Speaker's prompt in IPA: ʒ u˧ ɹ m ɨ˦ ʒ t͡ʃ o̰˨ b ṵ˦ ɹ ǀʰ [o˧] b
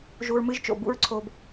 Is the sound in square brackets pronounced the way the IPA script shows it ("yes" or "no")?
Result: no